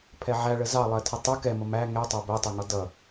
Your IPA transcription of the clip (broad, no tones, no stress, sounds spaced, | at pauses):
pʰ ɛ ʕ æ ɭ ə z ɑ lˠ ɜ tʰ ə tˤ ʊ k ɛ m ʊ m æ ŋ ɛ tˤ æ b ɜ tˤ ɛ ŋ ɒ d ʌ